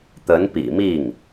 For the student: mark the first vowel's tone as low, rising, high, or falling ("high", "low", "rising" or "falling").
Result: rising